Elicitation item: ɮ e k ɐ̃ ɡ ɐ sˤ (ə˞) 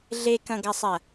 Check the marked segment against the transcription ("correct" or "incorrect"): incorrect